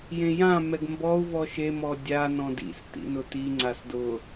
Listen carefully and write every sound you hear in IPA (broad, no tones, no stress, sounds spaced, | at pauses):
j ẽ j ã m ɛ ɡ m b ɔ u̯ v ɔ ʃ e m ɔ dʲ a n ɔ̃ d ḭ s t ḭ n ʊ t i ŋ͡ǀ a s d ʊ